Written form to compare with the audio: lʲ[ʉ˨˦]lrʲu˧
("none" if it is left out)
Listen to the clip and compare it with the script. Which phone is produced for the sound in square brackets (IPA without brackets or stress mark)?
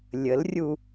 ə˨˦